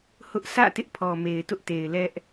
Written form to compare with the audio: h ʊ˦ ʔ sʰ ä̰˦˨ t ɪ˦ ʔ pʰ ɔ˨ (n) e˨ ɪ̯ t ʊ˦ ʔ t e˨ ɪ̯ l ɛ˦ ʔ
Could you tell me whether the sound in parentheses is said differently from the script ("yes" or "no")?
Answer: yes